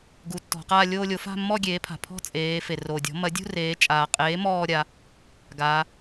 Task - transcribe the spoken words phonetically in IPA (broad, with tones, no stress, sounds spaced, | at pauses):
ɡ u˩˥ tː ɔ̤˩˧ q aː˥˧ lʲ oː˥˧ lʲ o˩˥ f a̤˥˧ mː ɔ˥˧ ɡʲ eː˩˥ pʰ a̤˩ pʰ ɔ̤˥˧ t͡sʼ eː˩˧ f e˩ r o˩ dʲ ɔ̤˩˥ m ɐ˩˥ dʲ ṳ˥˧ r eː˩˧ t͡ʃʼ aː˩ qʼ eː˩˥ m ɔː˥˧ ɾʲ a˩˧ | ɡ aː˩˧